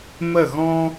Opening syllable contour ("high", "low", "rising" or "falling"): falling